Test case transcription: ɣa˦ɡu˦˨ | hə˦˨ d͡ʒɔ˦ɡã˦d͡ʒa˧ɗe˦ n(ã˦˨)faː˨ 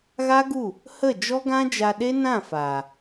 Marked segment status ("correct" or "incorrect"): correct